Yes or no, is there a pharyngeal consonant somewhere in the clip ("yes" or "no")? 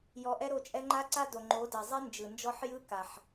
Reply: yes